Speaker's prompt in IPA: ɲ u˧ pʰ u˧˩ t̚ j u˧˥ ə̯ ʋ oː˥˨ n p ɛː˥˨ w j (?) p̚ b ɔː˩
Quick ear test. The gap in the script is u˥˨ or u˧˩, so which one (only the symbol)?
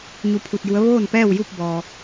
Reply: u˥˨